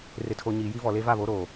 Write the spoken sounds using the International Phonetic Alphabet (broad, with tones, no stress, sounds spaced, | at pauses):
r ɪ˨ tʰ o˨ ɲ iː˨ j i˦ v ɔ˨ l e˦ v a˦˨ β o˨˦ ɾ oː˨